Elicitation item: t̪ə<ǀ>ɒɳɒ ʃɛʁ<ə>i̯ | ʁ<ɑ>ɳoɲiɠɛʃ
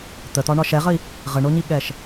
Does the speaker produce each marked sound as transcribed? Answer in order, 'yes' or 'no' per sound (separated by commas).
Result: no, yes, no